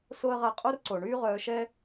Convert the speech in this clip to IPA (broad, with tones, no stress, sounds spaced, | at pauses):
s o˥ ə̯ ʁ a˥˩ qʼ o˥ r ǀ o˩ ɳ yː˥ ʁ œː˧ ʃ ɛ˥